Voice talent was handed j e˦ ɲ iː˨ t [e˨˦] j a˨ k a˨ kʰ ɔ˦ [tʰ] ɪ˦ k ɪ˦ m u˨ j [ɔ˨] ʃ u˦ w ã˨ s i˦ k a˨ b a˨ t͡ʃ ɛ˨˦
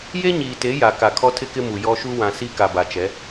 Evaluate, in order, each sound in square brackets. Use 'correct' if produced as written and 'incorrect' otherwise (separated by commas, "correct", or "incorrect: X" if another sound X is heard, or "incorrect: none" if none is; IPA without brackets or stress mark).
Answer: correct, correct, incorrect: ɔ˦